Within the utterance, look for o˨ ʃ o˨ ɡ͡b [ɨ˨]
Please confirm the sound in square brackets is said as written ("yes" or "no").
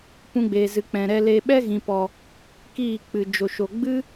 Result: no